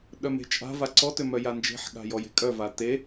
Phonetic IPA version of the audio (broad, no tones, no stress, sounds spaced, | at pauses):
ɗ œ m e̤ t͡ʃʼ a̤ v a ǀ ɔ t ø m œ j a n d͡ʒ e̤ ħ ɠ a̤ j ɔ j e̤ kʼ œ v a t e